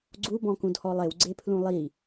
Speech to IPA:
ɡ͡ǀubɔ̃kũdhɔ lˠewɡ͡ǀepʰlũ lˠi

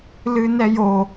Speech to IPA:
lɨnɛjo

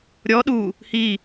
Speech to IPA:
ɾʲɔ ɗu | hi

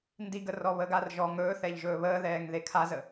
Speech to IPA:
ndiɡə rɔβəɡarʒɔːŋ ɵːθɛʎ ʒɵːβəːðɛːŋ ðekʰazə

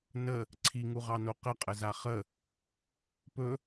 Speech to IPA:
nə | ǀʰiŋuʁɑno qəqʼəza χə | pɵ

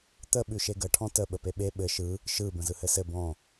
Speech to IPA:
t̪ə ɓʉʃeɡə ʈʰɔ̃tə ɓəpeɓe ɓɘ ʃɯ | ʃɯ bə̃zɯhɘsɘ bɔ̃

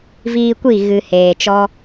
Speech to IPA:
viː˧kʷi˦˨ ɣɨ˨heː˨ t͡ʃɔ˦

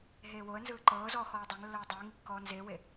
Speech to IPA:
ɦeːwoə̯nzɯː ǃɤːzɔː xɔːdˤɛŋlːɤː dˤɯːŋikːɔː nzewe

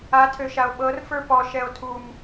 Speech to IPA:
atʰøʃao̯ ɓɤrfə˞ pɔʃɛo̯ tʰum

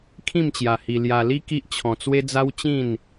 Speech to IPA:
kʰĩ˥˧mt͡ɕja˧hi˧ lja˧li˦ ki˦ʔt͡ɕʰɔ̃˧t͡swe˦ d͡za˦wt͡ɕĩ˥˧n

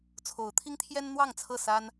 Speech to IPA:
t͡sʰo˨˦ʊ̯t̪ʰi˦ŋt̪ʰjɛ˦n n̪wɑ˥˨ŋt͡sʰɤ˥˨ sa˦n

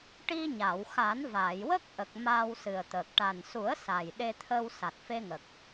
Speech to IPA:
ʈi˧ɲa˨˩˨wxa˨˩˦n vaː˨˩˨jwə˦˥k̚ʔə˨˩k̚ maː˧wsɨ˨˩ə̯t̪əː˨˩k̚ ʈa˨˩nsu˨˩˦ə̯ sa˨˩jɗe˧t̪ʰə˧w sa˨˩t̚fe˧ŋə˨˩k̚

